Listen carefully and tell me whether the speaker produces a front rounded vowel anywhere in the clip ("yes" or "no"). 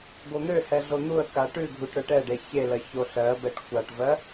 yes